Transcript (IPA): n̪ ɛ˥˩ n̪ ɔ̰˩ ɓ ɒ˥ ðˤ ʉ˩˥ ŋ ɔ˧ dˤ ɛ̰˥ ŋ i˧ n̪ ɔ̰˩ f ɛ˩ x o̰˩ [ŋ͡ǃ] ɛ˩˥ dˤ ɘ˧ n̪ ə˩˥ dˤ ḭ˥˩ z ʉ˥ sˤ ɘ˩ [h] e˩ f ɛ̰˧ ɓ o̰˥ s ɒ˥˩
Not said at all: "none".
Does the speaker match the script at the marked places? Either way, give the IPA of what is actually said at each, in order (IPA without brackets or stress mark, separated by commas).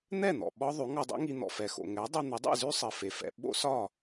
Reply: ŋ, f